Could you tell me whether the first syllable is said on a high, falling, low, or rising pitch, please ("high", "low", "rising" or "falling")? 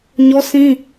high